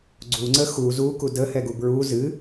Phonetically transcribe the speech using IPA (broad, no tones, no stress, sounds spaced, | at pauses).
ɡ͡ǀ u ŋ͡ǀ ə x u z u k u d ə h ɛ ɡ u b ɹ u z ɨ